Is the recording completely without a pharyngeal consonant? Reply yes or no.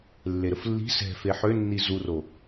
no